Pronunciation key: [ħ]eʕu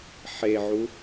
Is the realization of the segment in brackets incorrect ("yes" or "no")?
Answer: no